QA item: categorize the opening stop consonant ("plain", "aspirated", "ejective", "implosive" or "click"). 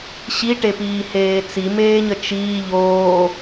plain